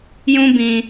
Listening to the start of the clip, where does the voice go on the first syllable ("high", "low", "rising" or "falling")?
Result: high